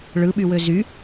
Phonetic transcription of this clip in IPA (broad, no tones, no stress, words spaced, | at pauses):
ɭɯɓywø zy